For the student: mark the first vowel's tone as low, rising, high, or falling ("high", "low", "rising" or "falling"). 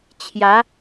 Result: rising